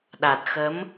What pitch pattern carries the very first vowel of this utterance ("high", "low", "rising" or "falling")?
low